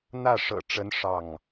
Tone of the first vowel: falling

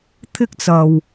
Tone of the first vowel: high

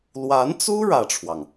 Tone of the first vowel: rising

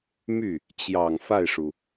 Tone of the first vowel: falling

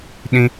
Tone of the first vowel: high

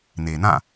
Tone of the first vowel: low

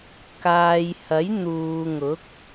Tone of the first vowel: low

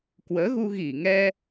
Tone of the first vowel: rising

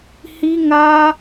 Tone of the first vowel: high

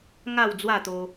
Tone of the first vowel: falling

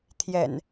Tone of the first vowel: low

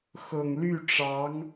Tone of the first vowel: low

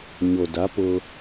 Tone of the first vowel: low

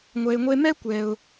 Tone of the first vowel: low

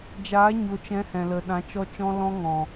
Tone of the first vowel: rising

